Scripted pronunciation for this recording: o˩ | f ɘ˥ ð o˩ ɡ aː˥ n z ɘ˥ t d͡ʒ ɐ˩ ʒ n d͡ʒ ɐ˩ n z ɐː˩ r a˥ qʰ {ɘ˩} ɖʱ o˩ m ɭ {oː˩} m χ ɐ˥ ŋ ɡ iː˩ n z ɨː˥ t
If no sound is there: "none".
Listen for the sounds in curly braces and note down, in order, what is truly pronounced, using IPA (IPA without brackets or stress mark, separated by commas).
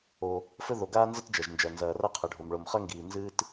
ɘ˩, o˩